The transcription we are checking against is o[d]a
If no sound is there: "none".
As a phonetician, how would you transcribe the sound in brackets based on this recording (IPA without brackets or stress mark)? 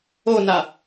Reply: n